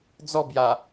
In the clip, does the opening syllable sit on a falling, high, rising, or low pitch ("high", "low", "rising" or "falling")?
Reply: falling